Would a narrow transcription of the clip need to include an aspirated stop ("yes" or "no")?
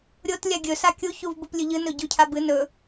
yes